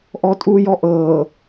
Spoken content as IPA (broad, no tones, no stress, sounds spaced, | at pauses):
ʔ ɔ tʼ uː j ɔ ʔ ɤː